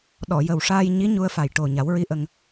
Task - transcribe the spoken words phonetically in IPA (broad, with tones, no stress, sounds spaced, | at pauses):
ɗ ɔ˨˩˨ j ə˨˩ w ʂ aː˧ j ɲ i˧˥ ɲ u˧ ə̯ f a˨˩ j ʈ o˨˩ ɲ a˨˩˦ w ɹ i˧˥ ʔ ə˧ ŋ